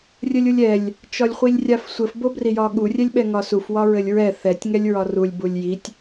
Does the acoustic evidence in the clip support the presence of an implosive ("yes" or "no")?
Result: yes